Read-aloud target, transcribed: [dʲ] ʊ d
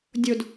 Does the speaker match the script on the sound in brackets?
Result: yes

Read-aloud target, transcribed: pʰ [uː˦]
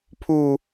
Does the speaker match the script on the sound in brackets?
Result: yes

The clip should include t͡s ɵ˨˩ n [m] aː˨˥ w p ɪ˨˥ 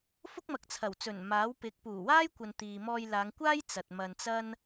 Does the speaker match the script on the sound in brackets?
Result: yes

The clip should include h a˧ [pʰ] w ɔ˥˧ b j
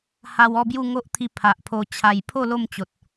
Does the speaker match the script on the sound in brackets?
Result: no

